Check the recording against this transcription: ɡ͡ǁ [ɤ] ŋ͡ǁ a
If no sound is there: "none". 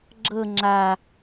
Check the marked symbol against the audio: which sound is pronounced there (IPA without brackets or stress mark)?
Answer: ɤ